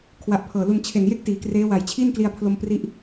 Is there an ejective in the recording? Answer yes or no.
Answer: no